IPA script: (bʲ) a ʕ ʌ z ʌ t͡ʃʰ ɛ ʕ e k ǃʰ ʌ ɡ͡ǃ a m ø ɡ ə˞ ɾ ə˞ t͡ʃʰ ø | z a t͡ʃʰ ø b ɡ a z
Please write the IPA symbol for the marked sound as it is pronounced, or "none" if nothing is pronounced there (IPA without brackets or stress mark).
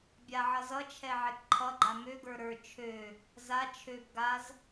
bʲ